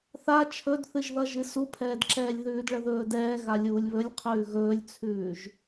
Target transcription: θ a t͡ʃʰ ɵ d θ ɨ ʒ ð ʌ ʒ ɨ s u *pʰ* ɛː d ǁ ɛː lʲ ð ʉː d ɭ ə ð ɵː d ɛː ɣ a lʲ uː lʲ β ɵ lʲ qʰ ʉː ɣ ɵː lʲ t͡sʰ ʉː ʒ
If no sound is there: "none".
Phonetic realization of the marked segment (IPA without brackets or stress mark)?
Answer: pʰ